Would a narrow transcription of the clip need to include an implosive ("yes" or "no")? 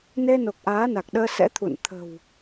yes